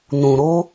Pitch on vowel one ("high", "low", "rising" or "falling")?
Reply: low